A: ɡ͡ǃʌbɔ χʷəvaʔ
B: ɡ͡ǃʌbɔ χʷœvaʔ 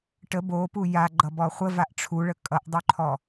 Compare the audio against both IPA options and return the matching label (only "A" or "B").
A